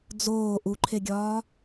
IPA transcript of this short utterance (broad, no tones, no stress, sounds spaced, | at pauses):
d͡z oː ʔ u ǃʰ e ɡʲ ɒː